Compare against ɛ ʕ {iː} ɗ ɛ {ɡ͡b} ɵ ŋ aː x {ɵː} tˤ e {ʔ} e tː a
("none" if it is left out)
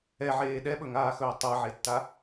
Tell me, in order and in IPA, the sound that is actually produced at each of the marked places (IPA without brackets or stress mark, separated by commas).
eː, ɓ, ɵː, ʕ